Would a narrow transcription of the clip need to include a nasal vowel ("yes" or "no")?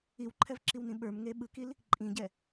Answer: yes